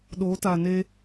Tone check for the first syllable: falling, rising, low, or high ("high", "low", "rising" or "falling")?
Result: rising